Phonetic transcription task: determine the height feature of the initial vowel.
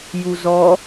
high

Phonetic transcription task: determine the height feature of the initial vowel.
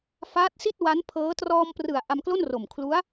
low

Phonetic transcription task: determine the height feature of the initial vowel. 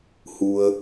high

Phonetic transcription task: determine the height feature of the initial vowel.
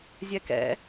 mid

